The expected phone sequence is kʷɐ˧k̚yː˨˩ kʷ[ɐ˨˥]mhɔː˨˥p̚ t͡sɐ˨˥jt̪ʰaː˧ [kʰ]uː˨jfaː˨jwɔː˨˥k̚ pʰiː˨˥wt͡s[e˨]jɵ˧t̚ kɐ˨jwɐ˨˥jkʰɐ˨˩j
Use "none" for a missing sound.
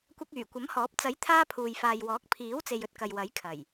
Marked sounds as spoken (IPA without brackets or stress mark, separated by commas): ɐ˨˥, pʰ, e˨